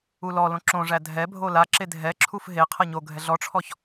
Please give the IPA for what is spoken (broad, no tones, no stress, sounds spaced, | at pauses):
u l ɔ l õ ǁ õ ʐ æ dʱ ɛ bʱ o l a ǁ e dʱ ɛ ǁʰ u f ɦ e qʰ ɤ ɲ o ɡʱ ɛ ɮ ɔ ʈ͡ʂʰ ɔ ç